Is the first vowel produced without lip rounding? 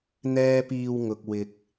yes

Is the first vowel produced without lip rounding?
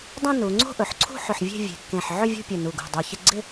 no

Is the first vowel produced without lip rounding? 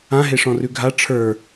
yes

